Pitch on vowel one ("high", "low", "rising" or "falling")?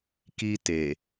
high